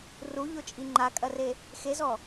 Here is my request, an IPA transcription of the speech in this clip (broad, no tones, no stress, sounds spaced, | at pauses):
r u ʎ o t͡ʃʼ i ŋ͡ǃ a kʼ ɐ r e | x e z ɔ